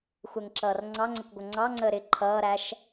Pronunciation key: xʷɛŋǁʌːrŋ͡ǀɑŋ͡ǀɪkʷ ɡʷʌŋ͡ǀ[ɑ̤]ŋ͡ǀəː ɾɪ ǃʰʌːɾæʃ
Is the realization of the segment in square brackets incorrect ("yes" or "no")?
yes